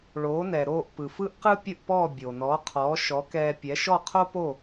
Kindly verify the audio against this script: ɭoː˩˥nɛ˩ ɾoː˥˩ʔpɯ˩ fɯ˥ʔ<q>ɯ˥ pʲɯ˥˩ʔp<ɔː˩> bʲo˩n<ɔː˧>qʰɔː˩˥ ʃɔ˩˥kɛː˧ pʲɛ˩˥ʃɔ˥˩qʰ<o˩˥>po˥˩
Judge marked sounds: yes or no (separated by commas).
yes, no, no, no